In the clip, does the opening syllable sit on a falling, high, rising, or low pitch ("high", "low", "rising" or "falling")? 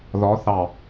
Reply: rising